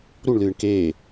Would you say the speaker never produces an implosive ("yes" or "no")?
yes